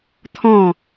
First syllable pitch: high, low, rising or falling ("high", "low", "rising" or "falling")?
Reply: falling